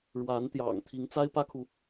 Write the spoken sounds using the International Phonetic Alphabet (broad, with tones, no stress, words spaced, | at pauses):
ɻwa˧˥nt̪jɑ̰˨˩ŋ t̪ʰi˧˥ŋt͡sa˥ɪ̯pä˥kʰu˨